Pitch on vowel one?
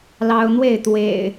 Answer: high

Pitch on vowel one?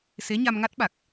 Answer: rising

